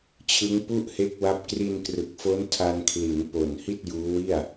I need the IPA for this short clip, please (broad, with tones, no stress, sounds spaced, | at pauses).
t͡ɕʰ ɯ˦˥ ŋ p u˥˩ ʔ h e˦˥ k̚ w a˦˥ p̚ k r i˧ n k r ɯ˨˩ k̚ f o˦˥ n tʰ a˧ n kʰ l i˩˦ n p o˨˩ n h i˥˩ t̚ j uː˦˥ w i˥˩ a̯